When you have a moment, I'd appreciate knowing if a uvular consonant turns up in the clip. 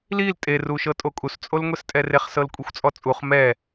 yes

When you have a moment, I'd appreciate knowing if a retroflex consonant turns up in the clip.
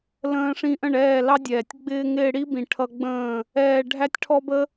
yes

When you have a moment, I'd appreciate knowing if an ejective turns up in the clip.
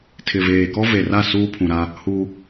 no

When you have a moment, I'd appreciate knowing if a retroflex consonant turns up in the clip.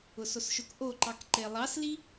no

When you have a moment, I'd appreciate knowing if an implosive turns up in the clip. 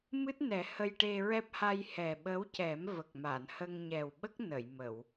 yes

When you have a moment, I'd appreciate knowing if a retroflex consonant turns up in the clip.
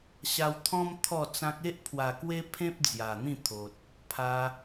no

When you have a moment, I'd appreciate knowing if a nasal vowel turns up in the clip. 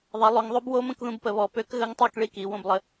yes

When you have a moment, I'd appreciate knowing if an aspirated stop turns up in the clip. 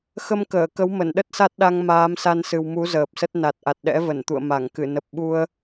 no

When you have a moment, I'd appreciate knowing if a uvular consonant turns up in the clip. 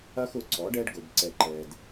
no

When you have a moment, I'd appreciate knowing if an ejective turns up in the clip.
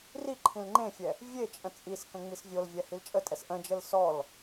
yes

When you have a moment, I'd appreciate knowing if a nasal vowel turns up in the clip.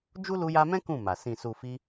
yes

